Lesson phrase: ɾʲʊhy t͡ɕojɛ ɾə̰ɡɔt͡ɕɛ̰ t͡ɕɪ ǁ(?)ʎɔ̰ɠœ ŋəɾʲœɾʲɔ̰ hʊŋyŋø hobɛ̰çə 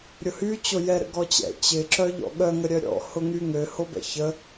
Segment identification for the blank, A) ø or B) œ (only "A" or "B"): B